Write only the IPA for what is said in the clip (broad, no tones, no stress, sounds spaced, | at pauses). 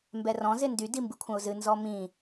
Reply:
m b ɛ r ɔ̃ z ɪ n d y d i m b ɨ kʷʰ ə̃ ʊ̯ z ɨ n z ɔ m ĩ